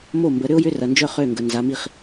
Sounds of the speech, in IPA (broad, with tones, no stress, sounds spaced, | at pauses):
m o˥˩ m b ə˩˧ ɾ ʏ˥ ʊ̯ j ʏ˧˥˧ r ɐ˩ n d͡ʒ œ˥˩ χ ø˥˩ ŋ ɡ ə˩ n z a˩˧ m i˥˩ χ